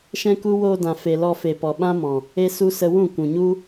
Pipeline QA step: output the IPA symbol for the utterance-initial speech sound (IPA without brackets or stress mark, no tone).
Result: ʃ